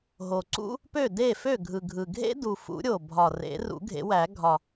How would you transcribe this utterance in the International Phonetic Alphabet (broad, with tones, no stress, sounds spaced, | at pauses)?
ɦ o˨˩ ǀ ṵ˦˥ | p ø˥˩ d e˥˩ f ø˥˩ ɡʱ ɯ˨˩ ɡʱ ɯ˨˩ ɡʱ ḛ˦˥ d u˨˩ f ṵ˨˩˦ ɾʲ o˨˩ bʱ ɒ˨˩ r ḛ˨˩˦ r ṵ˨˩˦ ɡʱ ḛ˨˩˦ w æ˨˩˦ ɡʱ ɒ˨˩